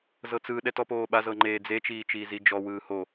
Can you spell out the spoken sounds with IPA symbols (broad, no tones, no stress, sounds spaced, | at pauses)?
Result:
z ɤ t͡s ɯ ɗ ɛ t ɔ p oː ɓ a z ɤ ŋ͡ǃ eː d͡z e t͡ʃ iː t͡ʃ iː z i d͡ʒ ɔ w ɯː h o